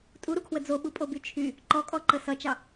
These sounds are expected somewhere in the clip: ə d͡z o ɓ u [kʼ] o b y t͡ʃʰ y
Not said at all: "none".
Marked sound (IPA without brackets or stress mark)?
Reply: pʼ